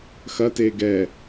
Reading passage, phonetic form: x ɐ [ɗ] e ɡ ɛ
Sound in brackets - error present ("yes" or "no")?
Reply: yes